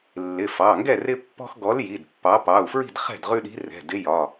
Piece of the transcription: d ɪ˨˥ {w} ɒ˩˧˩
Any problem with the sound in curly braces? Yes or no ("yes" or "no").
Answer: yes